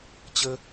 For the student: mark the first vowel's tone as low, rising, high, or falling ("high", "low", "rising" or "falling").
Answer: high